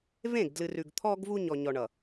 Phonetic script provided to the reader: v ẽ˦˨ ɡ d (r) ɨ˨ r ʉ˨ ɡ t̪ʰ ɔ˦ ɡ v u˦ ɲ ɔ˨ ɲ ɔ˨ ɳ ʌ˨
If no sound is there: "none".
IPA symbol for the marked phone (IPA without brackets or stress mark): l